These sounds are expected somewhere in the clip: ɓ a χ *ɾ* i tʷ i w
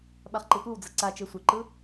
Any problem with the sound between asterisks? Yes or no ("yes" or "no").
yes